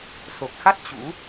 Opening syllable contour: low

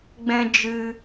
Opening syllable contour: high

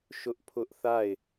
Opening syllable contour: high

